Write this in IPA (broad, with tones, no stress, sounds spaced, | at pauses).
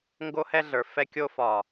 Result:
ŋ ɡ o˦ h ɛ˦ ɮ ə˞˨ f ɛ˦ kʲ o˦ f ɒ˨